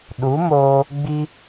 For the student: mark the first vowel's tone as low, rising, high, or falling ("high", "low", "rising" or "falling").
rising